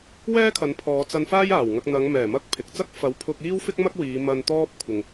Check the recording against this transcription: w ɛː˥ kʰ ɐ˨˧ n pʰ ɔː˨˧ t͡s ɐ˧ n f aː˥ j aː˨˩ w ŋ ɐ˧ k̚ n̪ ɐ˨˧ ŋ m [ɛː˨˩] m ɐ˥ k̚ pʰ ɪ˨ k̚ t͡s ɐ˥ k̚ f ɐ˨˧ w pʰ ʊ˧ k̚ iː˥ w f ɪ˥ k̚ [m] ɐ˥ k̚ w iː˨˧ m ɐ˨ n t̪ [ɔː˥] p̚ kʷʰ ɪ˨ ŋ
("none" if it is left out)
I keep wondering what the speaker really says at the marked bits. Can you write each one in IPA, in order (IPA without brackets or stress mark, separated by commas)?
ɛː˨˩, m, ɔː˧